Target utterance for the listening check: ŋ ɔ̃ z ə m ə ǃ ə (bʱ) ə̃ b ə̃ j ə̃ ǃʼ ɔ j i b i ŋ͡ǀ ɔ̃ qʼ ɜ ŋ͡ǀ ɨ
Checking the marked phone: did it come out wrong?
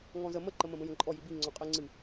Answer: yes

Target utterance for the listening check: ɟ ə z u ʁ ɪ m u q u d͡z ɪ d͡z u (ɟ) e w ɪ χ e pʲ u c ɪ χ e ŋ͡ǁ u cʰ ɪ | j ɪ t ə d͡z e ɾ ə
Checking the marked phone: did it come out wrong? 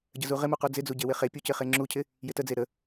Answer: no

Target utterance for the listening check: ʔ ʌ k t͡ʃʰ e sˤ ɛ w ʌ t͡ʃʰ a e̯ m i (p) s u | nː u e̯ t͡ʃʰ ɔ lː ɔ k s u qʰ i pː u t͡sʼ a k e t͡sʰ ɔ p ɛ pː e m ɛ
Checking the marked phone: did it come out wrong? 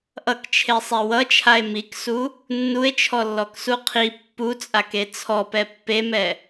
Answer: yes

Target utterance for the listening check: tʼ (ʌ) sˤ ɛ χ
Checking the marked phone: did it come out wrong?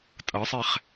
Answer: no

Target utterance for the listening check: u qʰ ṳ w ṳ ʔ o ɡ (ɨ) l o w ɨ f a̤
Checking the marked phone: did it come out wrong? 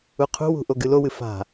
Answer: no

